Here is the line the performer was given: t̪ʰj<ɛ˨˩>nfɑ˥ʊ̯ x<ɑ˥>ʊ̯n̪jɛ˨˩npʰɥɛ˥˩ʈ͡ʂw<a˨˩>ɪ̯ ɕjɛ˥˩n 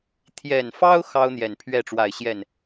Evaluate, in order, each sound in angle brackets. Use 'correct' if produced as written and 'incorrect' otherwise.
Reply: correct, correct, correct

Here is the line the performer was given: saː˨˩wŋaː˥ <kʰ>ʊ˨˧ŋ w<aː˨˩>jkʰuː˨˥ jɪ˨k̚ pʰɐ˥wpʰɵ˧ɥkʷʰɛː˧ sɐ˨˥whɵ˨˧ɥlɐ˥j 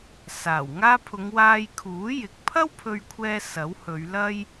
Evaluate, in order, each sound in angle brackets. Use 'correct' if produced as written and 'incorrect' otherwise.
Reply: incorrect: pʰ, incorrect: aː˧

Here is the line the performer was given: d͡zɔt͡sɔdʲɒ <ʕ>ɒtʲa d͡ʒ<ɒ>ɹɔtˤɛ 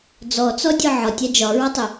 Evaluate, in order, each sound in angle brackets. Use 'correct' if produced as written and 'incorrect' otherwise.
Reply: correct, correct

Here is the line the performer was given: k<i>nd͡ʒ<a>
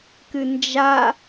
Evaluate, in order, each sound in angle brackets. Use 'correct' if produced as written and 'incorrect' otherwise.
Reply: incorrect: ɨ, correct

